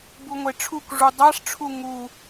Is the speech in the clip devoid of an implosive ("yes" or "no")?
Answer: yes